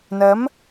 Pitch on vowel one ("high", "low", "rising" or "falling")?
rising